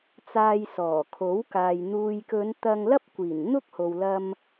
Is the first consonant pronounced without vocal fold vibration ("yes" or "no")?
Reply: yes